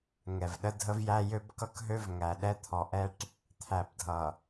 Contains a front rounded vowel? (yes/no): yes